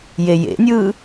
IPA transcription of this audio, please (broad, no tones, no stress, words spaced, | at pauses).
jejḛnʲɯː